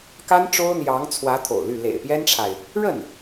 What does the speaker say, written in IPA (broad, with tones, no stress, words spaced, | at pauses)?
ka˥n ʈ͡ʂo˥ʊ̯n̪jɑ˧˥ŋt͡sʰwä˧˥t̪ʰo̰˨˩ʊ̯ ly˥˩ lḛ˨˩ɪ̯pjɛ˥nʈ͡ʂʰa˨ɪ̯ | ɻə˥˩n